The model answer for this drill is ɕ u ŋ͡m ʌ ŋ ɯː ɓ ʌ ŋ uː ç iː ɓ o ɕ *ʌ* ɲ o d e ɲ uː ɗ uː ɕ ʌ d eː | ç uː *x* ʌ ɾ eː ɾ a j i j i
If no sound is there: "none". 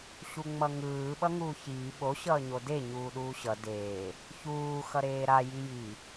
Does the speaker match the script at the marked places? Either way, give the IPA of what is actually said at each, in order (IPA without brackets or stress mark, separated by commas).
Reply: ʌː, x